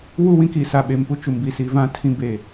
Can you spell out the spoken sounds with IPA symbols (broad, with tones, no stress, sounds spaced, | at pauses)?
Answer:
w u˦˨ w ĩ˦ k iː˨ s a˨ ɓ e˨ m p u˦ t͡ʃ u˨ m b i˨ s i˨ v ã˦ tʰ ĩ˦ b e˦˨